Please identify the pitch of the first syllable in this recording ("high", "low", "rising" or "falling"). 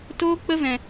high